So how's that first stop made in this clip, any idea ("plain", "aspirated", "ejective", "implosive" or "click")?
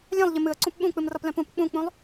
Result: click